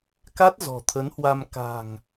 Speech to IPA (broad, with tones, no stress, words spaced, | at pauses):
ka˦˥t̚zɔ̤˨˩t̪ʰə˨˦nhwa˧m ka̤˨˩ŋ